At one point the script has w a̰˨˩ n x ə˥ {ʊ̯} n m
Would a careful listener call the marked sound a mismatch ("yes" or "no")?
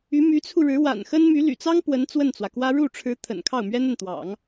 yes